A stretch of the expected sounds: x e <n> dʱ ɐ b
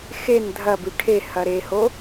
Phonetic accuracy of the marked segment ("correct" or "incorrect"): correct